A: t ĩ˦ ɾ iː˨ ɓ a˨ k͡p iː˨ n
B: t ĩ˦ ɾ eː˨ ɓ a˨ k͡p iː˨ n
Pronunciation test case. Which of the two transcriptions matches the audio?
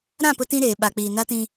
B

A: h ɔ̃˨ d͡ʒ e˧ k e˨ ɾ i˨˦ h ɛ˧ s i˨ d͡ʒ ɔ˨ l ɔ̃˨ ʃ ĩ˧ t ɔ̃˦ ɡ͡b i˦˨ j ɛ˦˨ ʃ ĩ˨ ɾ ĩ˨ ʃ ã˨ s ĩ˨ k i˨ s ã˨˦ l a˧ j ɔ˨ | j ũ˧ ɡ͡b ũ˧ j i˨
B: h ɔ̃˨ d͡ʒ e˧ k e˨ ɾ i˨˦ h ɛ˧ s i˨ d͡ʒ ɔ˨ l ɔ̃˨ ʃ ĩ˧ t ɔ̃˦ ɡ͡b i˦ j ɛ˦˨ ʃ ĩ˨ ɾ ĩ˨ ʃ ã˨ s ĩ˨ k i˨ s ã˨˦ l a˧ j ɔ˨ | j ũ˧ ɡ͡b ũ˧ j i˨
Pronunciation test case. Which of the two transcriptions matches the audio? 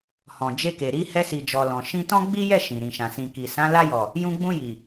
B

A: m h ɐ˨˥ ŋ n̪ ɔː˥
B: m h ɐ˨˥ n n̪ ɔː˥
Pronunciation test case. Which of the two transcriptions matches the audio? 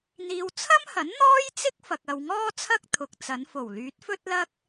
B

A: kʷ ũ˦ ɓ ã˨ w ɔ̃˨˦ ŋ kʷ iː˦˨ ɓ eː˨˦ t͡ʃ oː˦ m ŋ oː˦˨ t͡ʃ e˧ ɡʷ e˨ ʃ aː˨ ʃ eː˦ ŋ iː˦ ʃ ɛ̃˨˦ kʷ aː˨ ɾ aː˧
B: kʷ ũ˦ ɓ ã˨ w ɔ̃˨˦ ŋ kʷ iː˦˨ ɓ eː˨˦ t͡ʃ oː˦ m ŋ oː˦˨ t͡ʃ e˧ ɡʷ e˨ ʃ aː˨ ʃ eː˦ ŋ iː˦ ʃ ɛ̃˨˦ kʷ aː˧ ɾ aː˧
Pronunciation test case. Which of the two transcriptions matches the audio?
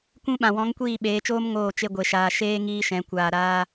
B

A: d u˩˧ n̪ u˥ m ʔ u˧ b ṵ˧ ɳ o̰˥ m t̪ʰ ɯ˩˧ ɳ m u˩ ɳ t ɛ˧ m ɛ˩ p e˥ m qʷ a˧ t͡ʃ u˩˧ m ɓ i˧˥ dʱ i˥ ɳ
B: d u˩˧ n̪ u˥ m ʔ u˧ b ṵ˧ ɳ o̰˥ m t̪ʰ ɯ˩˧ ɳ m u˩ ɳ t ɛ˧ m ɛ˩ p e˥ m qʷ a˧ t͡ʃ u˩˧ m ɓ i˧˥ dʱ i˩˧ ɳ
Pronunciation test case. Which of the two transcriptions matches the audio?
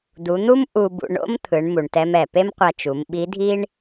A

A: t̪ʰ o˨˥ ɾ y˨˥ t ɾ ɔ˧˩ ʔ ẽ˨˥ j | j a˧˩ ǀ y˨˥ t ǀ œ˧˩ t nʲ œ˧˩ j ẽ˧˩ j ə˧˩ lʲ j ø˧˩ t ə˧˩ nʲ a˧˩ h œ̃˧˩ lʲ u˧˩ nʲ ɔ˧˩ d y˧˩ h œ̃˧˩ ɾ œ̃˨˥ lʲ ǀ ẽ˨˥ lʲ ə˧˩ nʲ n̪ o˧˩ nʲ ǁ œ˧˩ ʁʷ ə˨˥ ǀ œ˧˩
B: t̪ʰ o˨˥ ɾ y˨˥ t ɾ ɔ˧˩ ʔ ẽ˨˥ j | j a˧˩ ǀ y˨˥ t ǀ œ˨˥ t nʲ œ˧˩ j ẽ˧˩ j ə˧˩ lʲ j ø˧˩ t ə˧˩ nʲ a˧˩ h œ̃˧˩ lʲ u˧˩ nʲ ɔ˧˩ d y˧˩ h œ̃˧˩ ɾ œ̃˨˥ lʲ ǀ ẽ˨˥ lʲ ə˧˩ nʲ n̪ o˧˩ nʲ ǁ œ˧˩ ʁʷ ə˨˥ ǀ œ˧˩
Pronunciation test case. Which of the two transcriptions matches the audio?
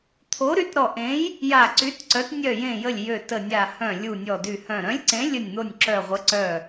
B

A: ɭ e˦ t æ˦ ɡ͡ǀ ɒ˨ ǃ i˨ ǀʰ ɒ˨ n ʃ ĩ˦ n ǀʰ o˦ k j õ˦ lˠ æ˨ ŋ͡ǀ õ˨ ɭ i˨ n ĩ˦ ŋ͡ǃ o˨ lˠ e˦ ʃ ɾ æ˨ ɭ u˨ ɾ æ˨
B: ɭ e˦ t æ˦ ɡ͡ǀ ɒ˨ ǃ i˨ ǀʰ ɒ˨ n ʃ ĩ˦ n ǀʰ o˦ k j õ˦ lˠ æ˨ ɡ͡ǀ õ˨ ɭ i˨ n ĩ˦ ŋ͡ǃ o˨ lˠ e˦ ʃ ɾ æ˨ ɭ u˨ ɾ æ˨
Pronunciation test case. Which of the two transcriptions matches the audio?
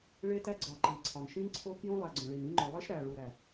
B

